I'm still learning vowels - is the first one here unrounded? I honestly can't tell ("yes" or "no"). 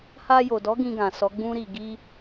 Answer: yes